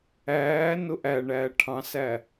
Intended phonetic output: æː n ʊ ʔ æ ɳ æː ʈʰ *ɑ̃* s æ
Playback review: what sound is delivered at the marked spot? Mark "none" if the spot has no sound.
ɑ̃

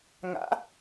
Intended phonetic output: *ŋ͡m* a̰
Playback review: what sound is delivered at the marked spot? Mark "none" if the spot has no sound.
ŋ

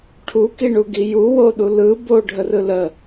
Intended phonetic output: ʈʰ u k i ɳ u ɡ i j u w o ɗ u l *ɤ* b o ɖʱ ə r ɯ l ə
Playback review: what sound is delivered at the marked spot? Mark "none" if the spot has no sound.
ɯ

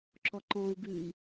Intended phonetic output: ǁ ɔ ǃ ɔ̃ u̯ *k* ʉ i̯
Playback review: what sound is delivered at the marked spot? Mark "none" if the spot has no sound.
ɡ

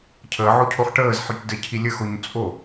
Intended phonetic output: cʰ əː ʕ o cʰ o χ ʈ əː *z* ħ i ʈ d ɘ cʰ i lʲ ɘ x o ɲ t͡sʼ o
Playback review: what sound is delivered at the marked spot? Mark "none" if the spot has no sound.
z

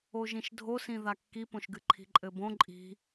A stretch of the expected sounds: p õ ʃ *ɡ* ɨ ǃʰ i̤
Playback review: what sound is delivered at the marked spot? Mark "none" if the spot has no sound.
ɡ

